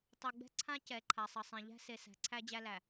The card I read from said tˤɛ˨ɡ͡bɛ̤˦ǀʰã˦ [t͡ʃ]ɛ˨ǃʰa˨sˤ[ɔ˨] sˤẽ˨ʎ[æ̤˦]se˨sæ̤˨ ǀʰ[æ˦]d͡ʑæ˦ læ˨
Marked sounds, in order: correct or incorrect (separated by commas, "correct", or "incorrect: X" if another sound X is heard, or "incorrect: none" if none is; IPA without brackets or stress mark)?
incorrect: c, incorrect: ʌ˨, correct, correct